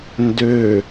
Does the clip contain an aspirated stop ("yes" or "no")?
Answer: no